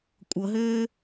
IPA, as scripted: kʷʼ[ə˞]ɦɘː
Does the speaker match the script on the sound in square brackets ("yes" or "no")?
no